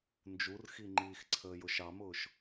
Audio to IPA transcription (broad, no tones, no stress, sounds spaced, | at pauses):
n d͡ʒ u r x i ŋ͡ǃ iː x ǀʰ əː j ʊ ʃ ɑ m ʊː ʃ